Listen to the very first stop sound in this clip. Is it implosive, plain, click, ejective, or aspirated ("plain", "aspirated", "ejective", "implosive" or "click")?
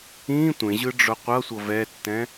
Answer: plain